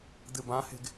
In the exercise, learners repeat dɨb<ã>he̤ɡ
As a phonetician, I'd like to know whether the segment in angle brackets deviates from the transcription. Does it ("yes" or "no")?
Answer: no